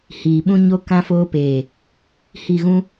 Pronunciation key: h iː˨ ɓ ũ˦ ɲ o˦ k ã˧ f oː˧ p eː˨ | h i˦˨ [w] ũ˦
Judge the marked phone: incorrect: ɣ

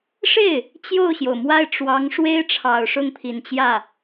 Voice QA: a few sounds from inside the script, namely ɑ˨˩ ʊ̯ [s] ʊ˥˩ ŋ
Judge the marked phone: incorrect: ʂ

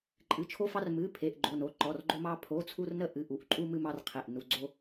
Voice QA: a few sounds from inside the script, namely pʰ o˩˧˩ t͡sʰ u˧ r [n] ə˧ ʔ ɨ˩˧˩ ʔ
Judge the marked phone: correct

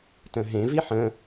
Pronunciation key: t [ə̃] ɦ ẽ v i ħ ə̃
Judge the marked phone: correct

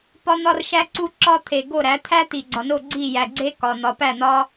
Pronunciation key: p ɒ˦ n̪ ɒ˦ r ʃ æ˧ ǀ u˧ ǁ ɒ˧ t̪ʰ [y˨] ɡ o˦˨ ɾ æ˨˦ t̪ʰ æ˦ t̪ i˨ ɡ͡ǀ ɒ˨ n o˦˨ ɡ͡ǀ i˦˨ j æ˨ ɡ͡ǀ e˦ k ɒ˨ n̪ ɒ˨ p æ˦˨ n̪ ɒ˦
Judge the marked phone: incorrect: e˨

